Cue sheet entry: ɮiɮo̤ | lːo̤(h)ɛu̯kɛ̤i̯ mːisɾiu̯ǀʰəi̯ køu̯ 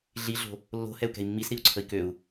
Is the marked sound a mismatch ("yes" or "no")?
no